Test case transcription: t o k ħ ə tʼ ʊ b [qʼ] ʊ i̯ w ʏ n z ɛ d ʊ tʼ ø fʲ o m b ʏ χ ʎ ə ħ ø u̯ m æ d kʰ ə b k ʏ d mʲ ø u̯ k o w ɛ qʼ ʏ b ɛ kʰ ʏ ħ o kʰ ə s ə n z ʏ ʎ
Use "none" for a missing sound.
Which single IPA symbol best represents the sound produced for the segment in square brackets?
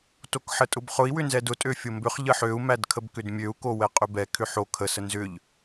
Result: χ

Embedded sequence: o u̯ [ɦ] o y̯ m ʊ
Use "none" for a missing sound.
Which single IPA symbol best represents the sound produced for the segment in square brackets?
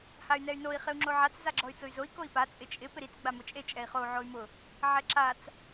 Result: ʕ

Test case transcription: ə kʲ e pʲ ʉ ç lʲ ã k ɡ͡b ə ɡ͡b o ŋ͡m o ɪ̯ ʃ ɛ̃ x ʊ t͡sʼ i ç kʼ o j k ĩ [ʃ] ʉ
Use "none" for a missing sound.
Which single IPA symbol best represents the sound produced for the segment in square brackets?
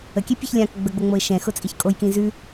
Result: z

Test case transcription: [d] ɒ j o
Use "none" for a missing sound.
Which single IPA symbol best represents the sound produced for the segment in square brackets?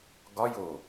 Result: ɡ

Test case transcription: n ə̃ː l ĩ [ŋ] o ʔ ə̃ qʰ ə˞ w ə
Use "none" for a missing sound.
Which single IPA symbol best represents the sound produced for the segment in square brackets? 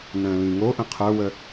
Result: ŋ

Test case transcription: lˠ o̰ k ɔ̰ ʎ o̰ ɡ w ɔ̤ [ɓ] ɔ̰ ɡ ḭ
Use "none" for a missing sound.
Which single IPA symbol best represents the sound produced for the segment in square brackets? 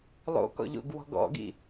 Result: ɡ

